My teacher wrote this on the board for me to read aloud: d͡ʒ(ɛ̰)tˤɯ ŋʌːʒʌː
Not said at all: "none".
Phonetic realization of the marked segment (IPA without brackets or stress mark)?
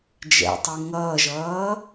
ɛ̰